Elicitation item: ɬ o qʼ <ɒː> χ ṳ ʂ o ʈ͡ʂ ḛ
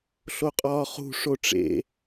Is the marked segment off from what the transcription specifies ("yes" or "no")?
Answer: no